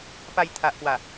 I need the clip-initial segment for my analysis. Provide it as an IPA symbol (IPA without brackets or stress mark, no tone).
p